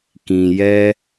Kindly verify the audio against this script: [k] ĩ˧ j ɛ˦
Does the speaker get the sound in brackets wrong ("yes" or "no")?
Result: no